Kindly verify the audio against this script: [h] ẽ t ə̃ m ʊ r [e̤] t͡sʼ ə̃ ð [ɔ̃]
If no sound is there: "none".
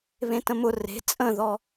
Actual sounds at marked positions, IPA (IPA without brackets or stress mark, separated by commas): β, e̤, ɔ